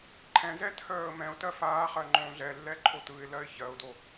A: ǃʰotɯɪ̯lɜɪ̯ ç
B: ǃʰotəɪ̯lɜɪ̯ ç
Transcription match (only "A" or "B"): A